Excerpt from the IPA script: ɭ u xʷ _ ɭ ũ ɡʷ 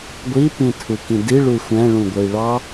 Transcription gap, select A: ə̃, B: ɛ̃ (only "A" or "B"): B